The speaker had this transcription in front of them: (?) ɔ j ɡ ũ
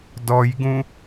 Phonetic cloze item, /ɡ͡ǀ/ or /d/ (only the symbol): d